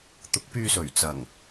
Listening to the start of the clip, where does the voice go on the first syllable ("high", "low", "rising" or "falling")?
rising